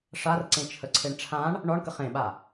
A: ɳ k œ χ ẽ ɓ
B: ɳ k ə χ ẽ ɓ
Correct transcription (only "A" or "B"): B